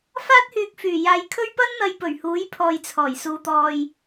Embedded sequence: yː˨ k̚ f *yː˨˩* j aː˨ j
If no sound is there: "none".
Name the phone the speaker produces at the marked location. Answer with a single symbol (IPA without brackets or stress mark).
yː˨˩